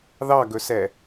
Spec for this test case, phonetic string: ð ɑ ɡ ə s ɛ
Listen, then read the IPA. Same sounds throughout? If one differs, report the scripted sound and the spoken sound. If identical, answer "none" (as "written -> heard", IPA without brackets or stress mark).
ə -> ɵ